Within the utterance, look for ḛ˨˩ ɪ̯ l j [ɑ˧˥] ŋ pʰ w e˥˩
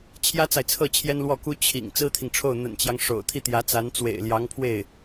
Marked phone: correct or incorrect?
correct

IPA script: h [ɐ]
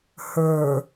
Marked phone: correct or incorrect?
incorrect: ə˞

